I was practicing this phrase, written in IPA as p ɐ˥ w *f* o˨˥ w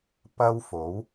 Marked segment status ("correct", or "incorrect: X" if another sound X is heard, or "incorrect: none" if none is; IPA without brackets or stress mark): correct